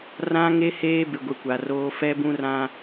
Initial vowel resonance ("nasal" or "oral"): nasal